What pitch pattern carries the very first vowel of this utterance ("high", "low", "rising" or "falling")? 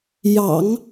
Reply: low